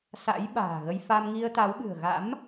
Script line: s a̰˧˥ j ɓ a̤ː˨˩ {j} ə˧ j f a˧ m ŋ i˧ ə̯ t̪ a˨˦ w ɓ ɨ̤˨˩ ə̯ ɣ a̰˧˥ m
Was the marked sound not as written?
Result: yes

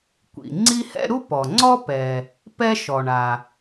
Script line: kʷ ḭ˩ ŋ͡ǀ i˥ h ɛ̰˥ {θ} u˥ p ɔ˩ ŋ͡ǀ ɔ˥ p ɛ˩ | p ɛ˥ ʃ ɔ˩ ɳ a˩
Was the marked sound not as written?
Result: yes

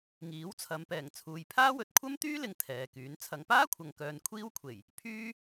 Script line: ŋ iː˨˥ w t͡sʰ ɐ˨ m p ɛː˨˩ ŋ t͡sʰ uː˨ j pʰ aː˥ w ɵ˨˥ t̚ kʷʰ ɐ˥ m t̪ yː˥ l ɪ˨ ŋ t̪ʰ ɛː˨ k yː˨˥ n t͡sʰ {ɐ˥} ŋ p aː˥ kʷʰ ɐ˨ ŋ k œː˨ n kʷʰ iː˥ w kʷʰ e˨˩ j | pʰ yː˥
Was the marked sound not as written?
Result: yes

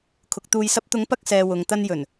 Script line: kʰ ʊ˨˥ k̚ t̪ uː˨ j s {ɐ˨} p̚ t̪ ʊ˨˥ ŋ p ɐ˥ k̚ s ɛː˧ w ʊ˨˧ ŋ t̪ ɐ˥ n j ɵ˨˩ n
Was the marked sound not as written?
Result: yes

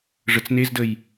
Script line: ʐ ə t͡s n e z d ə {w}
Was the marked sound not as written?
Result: yes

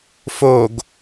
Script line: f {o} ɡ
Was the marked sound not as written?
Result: no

